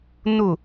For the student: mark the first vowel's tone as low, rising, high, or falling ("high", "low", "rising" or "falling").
falling